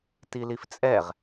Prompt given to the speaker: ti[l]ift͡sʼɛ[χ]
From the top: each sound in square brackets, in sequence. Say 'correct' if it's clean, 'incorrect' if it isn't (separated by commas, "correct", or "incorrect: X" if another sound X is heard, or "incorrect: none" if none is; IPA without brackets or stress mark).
correct, incorrect: ʁ